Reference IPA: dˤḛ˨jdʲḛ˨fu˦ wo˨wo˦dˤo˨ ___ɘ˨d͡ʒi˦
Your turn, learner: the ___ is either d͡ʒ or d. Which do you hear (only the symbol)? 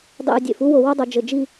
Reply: d͡ʒ